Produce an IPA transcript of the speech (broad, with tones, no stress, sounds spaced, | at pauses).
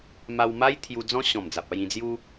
m a˧ w m a˦ j t̪ʰ j u˧ d͡z ɔ̃˦ ɕ ɔ̃˨˩ m d͡z a˨ p̚ a˥˧ j ĩ˧ d͡z j u˦